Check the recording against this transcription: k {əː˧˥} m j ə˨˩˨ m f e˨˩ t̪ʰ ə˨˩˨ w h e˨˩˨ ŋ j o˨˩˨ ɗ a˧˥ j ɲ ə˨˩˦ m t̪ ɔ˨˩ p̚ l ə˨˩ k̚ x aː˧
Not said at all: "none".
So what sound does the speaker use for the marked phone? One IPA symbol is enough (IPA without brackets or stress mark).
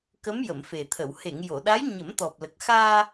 ə˧˥